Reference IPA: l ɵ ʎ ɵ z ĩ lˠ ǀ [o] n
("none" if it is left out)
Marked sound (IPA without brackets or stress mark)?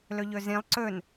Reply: ɵ